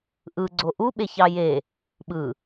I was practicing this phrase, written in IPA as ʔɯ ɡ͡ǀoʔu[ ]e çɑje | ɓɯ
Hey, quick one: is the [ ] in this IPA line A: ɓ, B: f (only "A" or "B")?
A